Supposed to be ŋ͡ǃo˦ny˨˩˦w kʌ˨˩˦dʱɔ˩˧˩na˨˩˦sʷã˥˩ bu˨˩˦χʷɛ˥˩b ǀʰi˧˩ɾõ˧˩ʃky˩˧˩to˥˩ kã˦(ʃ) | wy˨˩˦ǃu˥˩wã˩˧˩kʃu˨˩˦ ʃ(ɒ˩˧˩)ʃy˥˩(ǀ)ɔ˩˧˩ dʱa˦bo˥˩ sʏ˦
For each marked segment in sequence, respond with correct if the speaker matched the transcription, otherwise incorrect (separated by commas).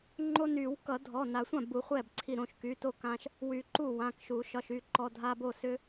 correct, correct, incorrect